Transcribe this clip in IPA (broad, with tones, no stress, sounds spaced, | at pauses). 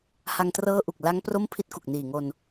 h a˧ ŋ t r ɤː˦˥ ʔ u˨˩ k̚ l a˦˥ ŋ p r o˥˩ m pʰ i˦˥ t̚ k u˨˩ k̚ n iː˨˩ ŋ o˧ n